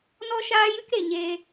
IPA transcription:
n ɔ˦ ʃ aː˦ j ɨ˦ k ɾ e˨ ɲ eː˧

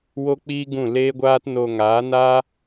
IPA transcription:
w o˦ k͡p iː˦ ɡ ũ˦˨ l eː˦ ɡʷ aː˦ t n o˧ ŋ aː˨˦ n aː˦

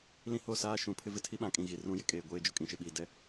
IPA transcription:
l ĩ˦ h o˦˨ s aː˦ ʃ ũ˨ pʰ ɪ˦ v ɪ˨ tʰ i˦ ɓ ã˨ kʼ ĩ˨ ɣ i˨ r ũ˦ j ɪ˨ kʼ eː˨ ɡʷ eː˦ d͡ʒ ʊ˦ kʼ ĩ˨ ʃ ɪ˨ ɓ iː˨ d ɛ˦

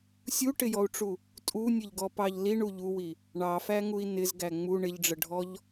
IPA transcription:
sʲ u ʈ ɪ j ɔ u̯ ʈ͡ʂ u | tʼ u nʲ ə ʎ ɡ ɔ p ɑ ʎ l i ɳ u ʎ u w i | ɳ ɑ f æ ŋ u i̯ n ɪ z ɡ æ ŋ͡m u ɳ ɪ ʎ ɖ͡ʐ ə ɖʱ ɔ ʎ

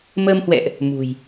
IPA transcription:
m əː˧ m h w ɛ̰˧˨ ʔ | m ṳ˨˩ j

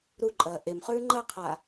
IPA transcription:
ɾ u ǃʼ ɐː ʔ e m χ ʉː ŋ͡ǃ ɐ qʰ a

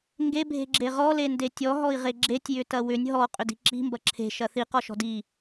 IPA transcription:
ŋ ɡ e bʱ e̤ ɡ͡ǁ e ʁ ɔ l e n d e tʲ ɔ ɦ ɔ i̯ ʁ e ɡ͡ǁ e tʲ j ʏ t ɐ w ʏ nʲ ɦ ɔ qʼ ʏ d i̤ ǁ i̤ m b ɐ ǁʰ e̤ ʃ ɐ θ i q ɔ ʃ ɔ̤ d i

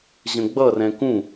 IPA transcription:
ʑ ə̃ ɡ͡b ʌ r ɛ̃ k ũ

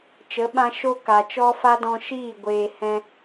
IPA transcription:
t͡ʃ ə˨˦ ɓ ã˧ ʃ o˦ k a˨ t͡ʃ ɔ˦ f a˦ d ɔ̃˧ ʃ iː˦˨ ɡʷ eː˧ h ɛ̃˦

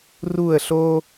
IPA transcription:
r u˥˧ ə̯ ɬ o˥

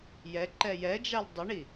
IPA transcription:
j ɛ ǃ ɛ j ɛ d͡ʒ a l dˤ ɪ ɳ i

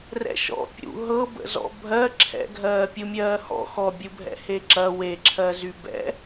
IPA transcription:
r ɛ̰ ʃ ɔ̰ pʲ ṵ ɦ ɤ b ə̰ z ɔ̰ bʱ ɜ ǁʰ ɛ̰ ɡʱ ɜː pʲ u mʲ ɜː h ɔ̰ x ɔ bʲ u bʱ ɛ̰ h e ǁ ɐ w e ǁʰ ɜ z y b ɛ̰

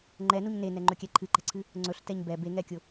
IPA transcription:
ŋ͡ǃ ɛ n u ɲ n e n ɛ ŋ͡ǃ ɵ kʲ ɛ ǃʰ ɨ ǃ ɛ̤ ǀʰ ɨ | ŋ͡ǀ ɵ ɬ t ɛ ɲ b ɛ b e ŋ ɛ kʲ ʊ

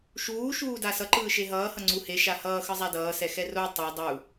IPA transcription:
ʃ uː ʃ uː d a s ʌ ǃ ɯː ʃ e ɦ ʌː h ʌ ŋ͡ǀ u h e ʃ a h ʌː x ɯ zˤ a d ʌː s ɛ x ɛ r o tˤ o dˤ u

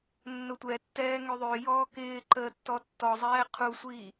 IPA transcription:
nː ʊ tʷ ɛ tː ɛː ŋ ø ðˤ ø j ɔː k ɪː ǃ əː tː ɔ tː ɔ zˤ ɛː qʰ u sʷ iː

